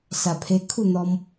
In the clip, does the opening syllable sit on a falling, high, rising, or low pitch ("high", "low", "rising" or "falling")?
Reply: low